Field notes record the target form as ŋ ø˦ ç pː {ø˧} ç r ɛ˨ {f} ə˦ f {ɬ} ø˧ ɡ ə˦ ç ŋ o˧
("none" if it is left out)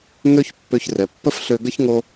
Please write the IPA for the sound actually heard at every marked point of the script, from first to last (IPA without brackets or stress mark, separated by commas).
ø˧, pː, ɬ